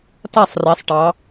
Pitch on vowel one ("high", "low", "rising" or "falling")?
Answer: falling